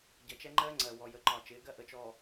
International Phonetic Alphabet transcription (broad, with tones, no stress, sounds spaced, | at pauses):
ɟ ʌ˨ t͡ʃ ɛ˦ ŋ͡ǃ ɜː˦ ŋ͡ǀ ɜ˨ w ɔ˨ j ə˨ ǃ ɒ˨ t͡ʃ ɪː˨˦ ɡ ɜ˦ ʔ ə˨ t͡ʃ ɔ˨